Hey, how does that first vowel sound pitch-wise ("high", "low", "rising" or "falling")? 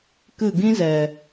falling